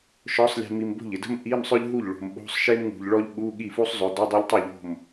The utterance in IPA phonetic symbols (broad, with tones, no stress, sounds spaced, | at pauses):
ʃ ɔ˨˦ sˤ lʲ e̤˨ m i˨ m b o̤˥˩ ʎ ɪ˨ d ə̤˥ m ʔ i˧˥˧ m sˤ ʏ˥ ʎ ɦ u˥˩ ʎ ɭ o̤˨ m ɓ o̤˧˥˧ sˤ ʃ e˥ m ŋ ṳ˨ ʎ ɭ ɔ˥ ʎ ɠ u˧˥˧ ɠ i˥˩ f u˥ sˤ zˤ ɵ˨˦ d ɵ˧˥˧ dˤ e˥ ʎ tˤ u˥˩ ʎ o̤˥˩ m